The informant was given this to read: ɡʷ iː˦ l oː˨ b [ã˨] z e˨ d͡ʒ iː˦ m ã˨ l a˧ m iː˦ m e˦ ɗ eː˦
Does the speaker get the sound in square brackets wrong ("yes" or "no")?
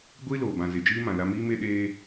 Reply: no